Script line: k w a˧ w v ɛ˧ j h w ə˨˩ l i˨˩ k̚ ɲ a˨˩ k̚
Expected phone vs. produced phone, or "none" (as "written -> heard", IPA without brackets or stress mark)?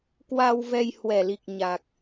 ə˨˩ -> ɛ˨˩